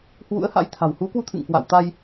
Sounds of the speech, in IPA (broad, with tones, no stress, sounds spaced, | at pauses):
h w ṵ˧˥ ə̯ h a̰˧˥ j t̪ʰ a̤˨˩ w h u˨˦ k w u˧ t̪ʰ ɨ̰˧˨ ŋ k w a̰˧˨ w t̪ a˧ j